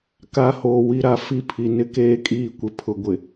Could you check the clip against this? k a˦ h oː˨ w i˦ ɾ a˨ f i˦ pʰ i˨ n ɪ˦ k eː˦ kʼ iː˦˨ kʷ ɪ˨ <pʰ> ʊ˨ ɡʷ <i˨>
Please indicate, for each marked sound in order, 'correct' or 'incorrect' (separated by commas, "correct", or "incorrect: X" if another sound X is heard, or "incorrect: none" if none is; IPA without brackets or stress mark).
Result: correct, incorrect: ɪ˨